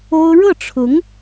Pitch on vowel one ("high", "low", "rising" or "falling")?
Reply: high